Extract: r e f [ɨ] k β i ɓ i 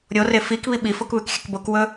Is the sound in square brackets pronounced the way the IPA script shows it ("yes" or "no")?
no